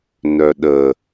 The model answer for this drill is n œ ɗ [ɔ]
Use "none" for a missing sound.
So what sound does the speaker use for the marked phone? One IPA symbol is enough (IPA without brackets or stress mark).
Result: ə